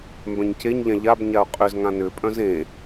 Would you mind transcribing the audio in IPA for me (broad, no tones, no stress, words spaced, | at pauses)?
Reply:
mbœ̃ɲceɲʎã ʎabɲaʊ̯ qʼʏzŋã nʏpʼœ̃z ẽ